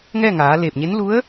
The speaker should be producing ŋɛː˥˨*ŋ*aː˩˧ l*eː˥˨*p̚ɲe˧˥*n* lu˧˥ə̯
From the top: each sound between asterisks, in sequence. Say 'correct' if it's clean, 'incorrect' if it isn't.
correct, incorrect, correct

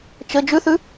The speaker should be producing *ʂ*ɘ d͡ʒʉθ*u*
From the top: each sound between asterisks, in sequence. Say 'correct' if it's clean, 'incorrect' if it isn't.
incorrect, incorrect

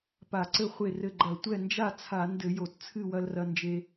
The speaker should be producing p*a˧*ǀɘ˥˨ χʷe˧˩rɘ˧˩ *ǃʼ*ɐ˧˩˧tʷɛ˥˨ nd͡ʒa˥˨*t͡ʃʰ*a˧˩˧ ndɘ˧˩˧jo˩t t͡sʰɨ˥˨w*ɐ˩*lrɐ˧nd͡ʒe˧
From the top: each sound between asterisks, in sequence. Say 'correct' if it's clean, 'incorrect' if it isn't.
incorrect, incorrect, incorrect, incorrect

